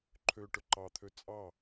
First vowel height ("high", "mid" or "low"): mid